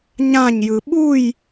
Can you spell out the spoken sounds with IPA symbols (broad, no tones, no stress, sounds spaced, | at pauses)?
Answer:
ɲ ã ɲ j ɯ ɓ u j